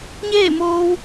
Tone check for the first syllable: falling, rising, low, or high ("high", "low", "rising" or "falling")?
falling